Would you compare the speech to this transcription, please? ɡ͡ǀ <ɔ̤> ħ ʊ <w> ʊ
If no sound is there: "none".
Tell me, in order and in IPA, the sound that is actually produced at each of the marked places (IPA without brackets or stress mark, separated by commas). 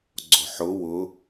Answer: ɔ̤, w